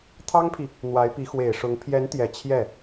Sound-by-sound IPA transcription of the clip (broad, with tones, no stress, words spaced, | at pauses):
t̪ʰɑ˥ŋpʰi˨ | n̪wa˧˥ɪ̯pi˧˥ xwe˨˩ɪ̯ʂʊ˧˥ŋ pʰjɛ˧˥nt̪jɛ˨˩ t͡ɕʰjɛ˥˩